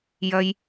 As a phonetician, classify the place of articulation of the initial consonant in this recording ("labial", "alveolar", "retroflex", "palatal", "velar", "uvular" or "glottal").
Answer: palatal